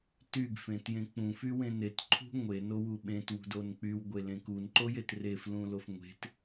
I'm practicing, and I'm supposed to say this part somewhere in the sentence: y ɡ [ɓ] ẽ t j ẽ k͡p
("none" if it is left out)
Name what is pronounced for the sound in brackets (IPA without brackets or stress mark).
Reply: f